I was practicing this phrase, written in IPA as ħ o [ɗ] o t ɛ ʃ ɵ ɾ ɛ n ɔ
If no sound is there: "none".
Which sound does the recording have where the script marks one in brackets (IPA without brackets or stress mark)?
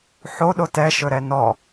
ɗ